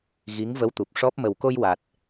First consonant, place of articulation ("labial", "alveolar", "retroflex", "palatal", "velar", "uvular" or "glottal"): velar